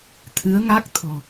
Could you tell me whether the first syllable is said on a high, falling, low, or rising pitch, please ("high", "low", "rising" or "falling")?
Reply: rising